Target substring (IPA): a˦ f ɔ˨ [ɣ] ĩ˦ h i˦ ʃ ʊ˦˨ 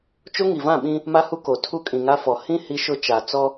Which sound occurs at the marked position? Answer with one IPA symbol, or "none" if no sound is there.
h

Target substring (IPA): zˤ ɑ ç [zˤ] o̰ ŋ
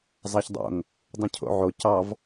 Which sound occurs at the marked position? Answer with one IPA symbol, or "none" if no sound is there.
dˤ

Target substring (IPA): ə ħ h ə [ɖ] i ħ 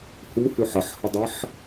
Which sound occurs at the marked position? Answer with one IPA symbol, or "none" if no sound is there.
dˤ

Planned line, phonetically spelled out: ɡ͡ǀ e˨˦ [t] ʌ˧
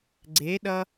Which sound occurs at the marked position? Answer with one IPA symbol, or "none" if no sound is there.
ɗ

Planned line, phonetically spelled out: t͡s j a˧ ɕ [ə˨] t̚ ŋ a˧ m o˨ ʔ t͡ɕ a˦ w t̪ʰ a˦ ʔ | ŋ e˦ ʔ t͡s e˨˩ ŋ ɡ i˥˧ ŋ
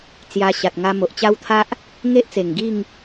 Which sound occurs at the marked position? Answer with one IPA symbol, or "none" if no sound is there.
a˨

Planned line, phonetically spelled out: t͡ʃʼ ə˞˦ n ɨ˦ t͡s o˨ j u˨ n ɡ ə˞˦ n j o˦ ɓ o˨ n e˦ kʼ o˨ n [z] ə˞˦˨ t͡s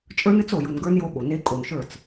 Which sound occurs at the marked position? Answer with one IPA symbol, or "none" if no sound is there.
ʃ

